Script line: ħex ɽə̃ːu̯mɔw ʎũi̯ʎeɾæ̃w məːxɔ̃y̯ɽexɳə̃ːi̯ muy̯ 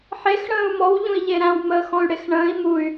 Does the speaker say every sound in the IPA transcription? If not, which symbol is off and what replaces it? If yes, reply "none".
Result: none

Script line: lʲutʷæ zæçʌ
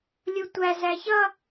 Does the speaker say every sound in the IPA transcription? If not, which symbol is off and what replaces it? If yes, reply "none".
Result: none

